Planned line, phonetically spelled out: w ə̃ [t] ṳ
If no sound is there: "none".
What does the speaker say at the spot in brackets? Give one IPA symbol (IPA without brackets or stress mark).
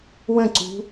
ǀ